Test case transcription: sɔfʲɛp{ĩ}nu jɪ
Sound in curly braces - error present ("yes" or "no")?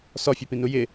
no